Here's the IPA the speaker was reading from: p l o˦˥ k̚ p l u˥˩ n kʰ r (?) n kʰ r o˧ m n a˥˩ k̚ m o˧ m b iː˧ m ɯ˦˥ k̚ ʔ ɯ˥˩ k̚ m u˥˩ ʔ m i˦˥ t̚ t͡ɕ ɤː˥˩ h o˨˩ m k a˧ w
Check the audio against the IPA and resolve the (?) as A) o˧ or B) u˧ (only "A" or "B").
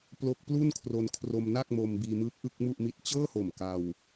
A